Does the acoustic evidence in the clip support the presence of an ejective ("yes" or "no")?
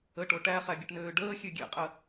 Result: yes